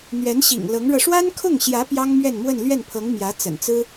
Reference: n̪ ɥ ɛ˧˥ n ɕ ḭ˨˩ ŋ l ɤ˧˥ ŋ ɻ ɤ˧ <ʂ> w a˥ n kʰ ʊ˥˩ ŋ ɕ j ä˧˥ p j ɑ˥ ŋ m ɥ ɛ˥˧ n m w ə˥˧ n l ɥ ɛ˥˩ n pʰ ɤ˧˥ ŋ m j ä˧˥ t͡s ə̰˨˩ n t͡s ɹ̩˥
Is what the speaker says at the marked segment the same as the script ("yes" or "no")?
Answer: yes